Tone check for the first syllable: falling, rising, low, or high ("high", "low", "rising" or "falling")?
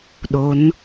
rising